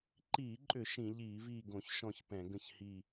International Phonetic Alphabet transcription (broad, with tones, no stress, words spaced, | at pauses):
ǃiː˧˩˧ǃʼʏ˧˩˧ ʃĩ˧˩˧ ʎiː˧˩˧viː˦˨ɡõ˧˩˧ç ʃɔ̃˦˨çpɛ̃˧˩˧ ɡə̃˦˨çhiː˦˨